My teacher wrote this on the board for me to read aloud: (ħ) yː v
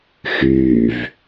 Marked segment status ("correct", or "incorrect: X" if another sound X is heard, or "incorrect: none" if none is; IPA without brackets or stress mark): incorrect: x